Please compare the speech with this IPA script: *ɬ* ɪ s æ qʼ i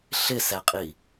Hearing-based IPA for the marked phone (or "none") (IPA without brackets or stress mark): ɬ